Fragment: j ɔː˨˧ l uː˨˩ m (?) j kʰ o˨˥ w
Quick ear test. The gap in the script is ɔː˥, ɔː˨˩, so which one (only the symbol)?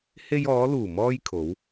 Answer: ɔː˥